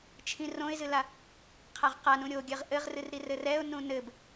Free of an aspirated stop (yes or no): no